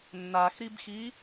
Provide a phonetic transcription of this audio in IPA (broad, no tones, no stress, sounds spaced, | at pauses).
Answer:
nː a x ɾ i b x i